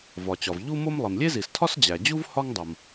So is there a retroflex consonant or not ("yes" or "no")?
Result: no